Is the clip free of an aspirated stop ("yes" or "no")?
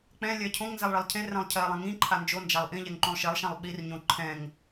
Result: no